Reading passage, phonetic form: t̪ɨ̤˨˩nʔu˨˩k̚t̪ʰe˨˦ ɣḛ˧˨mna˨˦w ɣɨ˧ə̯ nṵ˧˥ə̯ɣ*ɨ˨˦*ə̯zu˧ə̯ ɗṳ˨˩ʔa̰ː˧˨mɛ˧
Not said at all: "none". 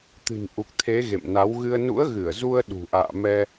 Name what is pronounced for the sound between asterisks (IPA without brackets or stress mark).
ɨ˧˩